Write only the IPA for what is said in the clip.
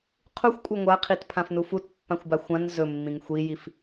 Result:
qʰ u xʷ kʷʼ a ŋʷ a qʰ i t pʰ ã f n u f u t pː ã xʷ b a xʷ ã n z ɵ mː ĩ ŋ xʷ i j i f

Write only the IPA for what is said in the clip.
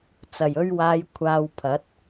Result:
t͡s ɐ˨˩ j ɵ˧ ɥ w aː˨˧ j kʷʰ aː˧ w pʰ ɐ˨˥ t̚

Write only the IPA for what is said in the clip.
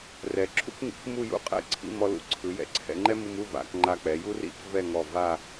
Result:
r ɛ˩˧ ǁʰ ṵ˥ k ŋ ḭ˩˧ k m u˥˧ j ṵ˥˧ qʼ ɛ̰˥˧ ǀʰ ḭ˥˧ m ɔ˧ l ṵ˧ ǀʰ ɯ˩˧ j ɛ̰˧˩ ǀʰ ɛ̰˧ ŋ͡ǃ ɛ˥ m u˧ m u˥˧ v a̰˩˧ k ŋ͡ǃ a˧ k͡p ɛ˩˧ j u˥ r ḭ˥ k v ɛ˥˧ ŋ ɔ˧˩ v a˥˧

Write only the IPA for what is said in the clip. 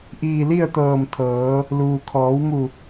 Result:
ʔ iː˧˩ l i˥˨ ə̯ t̪ ɤː˧˩ m t̪ʰ ɤː˩˧ | l uː˩ kʰ ɔː˩˧ w m u˧˩

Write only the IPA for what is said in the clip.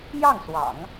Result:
j ɑ˥˩ ŋ s w ɑ̰˨˩˦ ŋ

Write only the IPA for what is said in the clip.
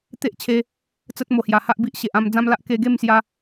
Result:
t̪ e˦ ʔ t͡ɕʰ e˧ | t͡s ə˦ t̚ m o˨˩ h j a˨˩ h a˦ ʔ b i˦ ʔ ɕ e˨ ʔ ã˥˧ m d͡z ã˦ m l a˦ ʔ k e˧ ɡ e˥˧ m s j a˧

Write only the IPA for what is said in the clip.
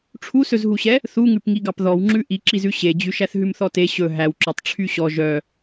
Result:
ʈ͡ʂʰ u s ɵ z ɦ u ɕ ɛ | θ u ŋ ʉ p ŋ i ɡ ɑ p ð ɔ w ŋ͡ǁ ʉ ʔ i ǁ i z ʉ ɕ e d͡ʑ ʉ ʃ æ θ ɦ ʉ m θ ɔ t e ɕ ɵ ɦ æ w ǁ ɔ tˤ ʈ͡ʂʰ y ɕ ɔ ʒ œ

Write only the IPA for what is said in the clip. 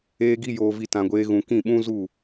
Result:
eː˧ ɡ i˧ j oː˨ v i˨ t ã˨ ɡʷ eː˧ ɣ ũ˨ k ĩ˦˨ ɓ ũ˦ z u˦˨

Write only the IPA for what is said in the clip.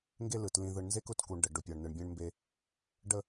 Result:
ŋ ɡ e˦ l ɯ˨ t l ĩ˨ ð ɯ˨ ɳ n z e˦ k ʊ˨ t k u˨ ɳ ɖ ə˨ ɖ ʊ˨ pʲ ɒ˨ ɳ n ɯ˨ ɳ bʲ ẽ˦ ɳ m b e˦ | ɖ ə˦

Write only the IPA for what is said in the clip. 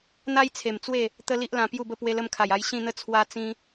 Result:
n̪ a˦ j t͡sʰ e˨˩ m t͡s w e˥˧ | t̪ ə˦ l i˦ ʔ l ã˧ p j u˥˧ b ə˥˧ p w e˧ l ə˧ m kʰ a˨˩ j a˧ j ɕ ĩ˥˧ n̪ ə˥˧ t͡sʰ w a˦ t͡s ĩ˦

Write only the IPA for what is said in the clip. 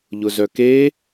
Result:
ʎ ʊ z œ k e

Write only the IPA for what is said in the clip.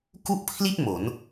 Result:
k u˥˩ ʔ pʰ l i˥˩ t̚ m o˩˦ n

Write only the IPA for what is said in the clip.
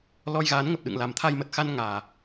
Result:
l ɔ˧ j ɣ aː˨˦ n ŋ ə˨˩ p̚ ɗ ɨ̰˧˨ ŋ l a˨˩ m t̪ʰ a˧ j m ə˨˩ t̚ x a˧ n ŋ aː˨˩

